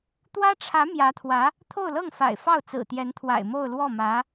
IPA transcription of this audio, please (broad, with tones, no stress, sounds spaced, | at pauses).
t̪ w ä˥ ʈ͡ʂʰ ä˧˥ m j ä˧˥ t̪ʰ w ä˧˥ | t̪ʰ o˥˧ ʊ̯ l ɤ˥˩ ŋ f a̰˨˩ ɪ̯ f ɑ˥˩ ʊ̯ t͡s ɹ̩˨˩ t̪ j ɛ˧˥ n t̪ʰ w a̰˨˩ ɪ̯ m o˥˧ ʊ̯ l w ɔ˥˩ m ä˧˥